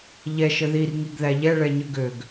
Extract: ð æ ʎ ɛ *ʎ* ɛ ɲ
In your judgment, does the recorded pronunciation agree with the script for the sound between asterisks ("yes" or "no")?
no